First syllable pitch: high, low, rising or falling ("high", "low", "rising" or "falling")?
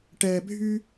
low